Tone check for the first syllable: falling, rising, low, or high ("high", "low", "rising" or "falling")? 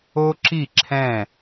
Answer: high